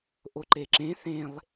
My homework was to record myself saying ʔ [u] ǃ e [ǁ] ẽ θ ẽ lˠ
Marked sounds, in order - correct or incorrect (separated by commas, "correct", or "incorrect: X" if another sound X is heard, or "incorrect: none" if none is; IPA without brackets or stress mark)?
incorrect: o, correct